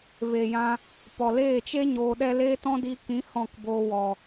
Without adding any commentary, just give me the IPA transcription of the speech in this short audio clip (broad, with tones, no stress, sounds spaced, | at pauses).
v eː˨ j ã˧ | p ɔ˨ l eː˦˨ t͡ʃ e˦ ɲ oː˧ ɗ ɛ˦ l eː˦ t ɔ̃˦ d iː˧ k ĩ˨˦ h ɔ̃˦˨ k b oː˧ w ɔ˨